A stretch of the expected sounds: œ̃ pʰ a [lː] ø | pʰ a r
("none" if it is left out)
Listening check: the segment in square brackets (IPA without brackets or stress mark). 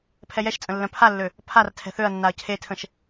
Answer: lː